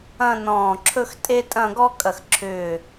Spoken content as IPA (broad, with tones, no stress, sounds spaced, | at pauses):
ɐ̃˥˧ n ɔ̃ː˧˩ ǁʰ ɵ˥ x tʼ e˥ tʼ ɐ̃˥˧ ɡ ɔ˥ kʼ ɐ˧˩ x ǁʰ ʏː˧˩